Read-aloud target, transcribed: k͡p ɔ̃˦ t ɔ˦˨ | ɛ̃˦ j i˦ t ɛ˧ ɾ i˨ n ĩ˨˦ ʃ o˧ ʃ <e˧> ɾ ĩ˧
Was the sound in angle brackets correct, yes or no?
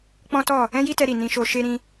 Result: yes